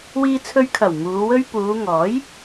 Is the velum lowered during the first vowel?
no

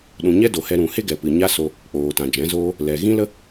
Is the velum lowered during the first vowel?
yes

